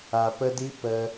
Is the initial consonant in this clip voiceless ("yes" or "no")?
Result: yes